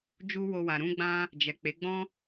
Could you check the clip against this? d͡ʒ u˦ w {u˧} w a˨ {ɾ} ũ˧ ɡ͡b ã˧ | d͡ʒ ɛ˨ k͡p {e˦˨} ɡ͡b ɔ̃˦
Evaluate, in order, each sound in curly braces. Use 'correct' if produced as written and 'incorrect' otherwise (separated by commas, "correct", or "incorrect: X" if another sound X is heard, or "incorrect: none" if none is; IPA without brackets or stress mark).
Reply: incorrect: o˧, correct, incorrect: e˨˦